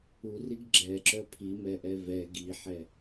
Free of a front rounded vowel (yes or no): no